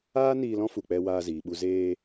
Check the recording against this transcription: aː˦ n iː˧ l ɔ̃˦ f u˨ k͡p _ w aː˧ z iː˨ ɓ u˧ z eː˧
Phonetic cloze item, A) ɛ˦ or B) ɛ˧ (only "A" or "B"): B